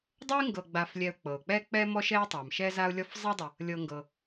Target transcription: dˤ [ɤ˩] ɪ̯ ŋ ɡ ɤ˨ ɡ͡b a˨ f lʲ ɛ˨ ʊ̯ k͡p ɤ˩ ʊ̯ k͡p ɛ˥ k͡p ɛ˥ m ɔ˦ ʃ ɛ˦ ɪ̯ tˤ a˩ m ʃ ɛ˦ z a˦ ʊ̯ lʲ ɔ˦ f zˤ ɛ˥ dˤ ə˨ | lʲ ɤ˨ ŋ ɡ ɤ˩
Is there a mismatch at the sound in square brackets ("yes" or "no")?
yes